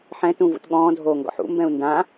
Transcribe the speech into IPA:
ħ ɛ̃ t ũ v ṵ t ɠ ɔ̃ː dʱ oː ŋ ɡ ɔ̰ ħ ṵ m b ɛ̃ u̯ n d ã

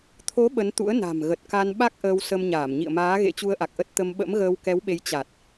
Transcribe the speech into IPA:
t̪ʰ o˨˦ ɓ ə˨˦ n t̪ ṵ˧˥ ə̯ n a̤˨˩ m ɣ ə˨˩ t̚ k a˧ n ɓ a˦˥ k̚ ʔ əː˧ w s ə˧ m ɲ aː˧˩ m ɲ ḭ˧˨ ə̯ m aː˨˦ ɣ ḛ˧˥ t͡ɕ u˧ ə̯ ʔ a˨˩ k̚ ʔ ə˦˥ t̚ t̪ ə˧ m ɓ ə̰˧˥ m ɣ əː˧ w k ɛ˨˦ w ɓ e˨˦ j t͡ɕ a˨˩ t̚

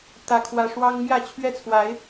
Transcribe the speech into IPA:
t̪ ä˦ kʰ w ä˦ ʂ w ɑ˦ ŋ m j ä˥˨ t͡ɕʰ ɥ ɛ˥˨ t͡sʰ w a˨˦ ɪ̯

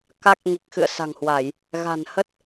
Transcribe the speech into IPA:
k a˦˥ k̚ ŋ i˨˩ k̚ x ɨ̰˧˨ ə̯ s a̤˨˩ ŋ h w a˧˩˨ j | ɣ a̤˨˩ n h ə˦˥ t̚

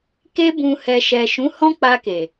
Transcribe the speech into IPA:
k e˧ b ũ˨ h ɛ˨ ʃ ɛ˨ ʃ ũ˨˦ h ɔ̃˦ k͡p a˧ k e˨

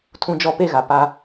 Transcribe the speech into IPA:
tʰ ũ˦ d͡ʒ ɔ˦ p e˦ ɣ a˨ p a˦

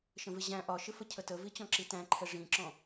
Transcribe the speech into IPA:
ʃ ə̃ v ɪ ʑ æ̃ ʔ ɒ ʃ ɪ f ə cʰ ə t ə v i t͡ɕ ɔ̃ ǁ i t æ̃ ǃʰ ɛ ʐ ĩ ǁ ɔ̃

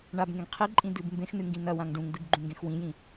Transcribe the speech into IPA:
ɳ a b ŋ ẽ ɡ qʰ i ǃʼ ĩ d ɨ b m b ẽ x n ɨ ŋ ɡ ĩ n ɐ w ã ŋ ɖ ũ ŋ d ɨ ɡ ɡ͡ǃ ũ ŋ ɡ ẽ x w ĩ j ĩ

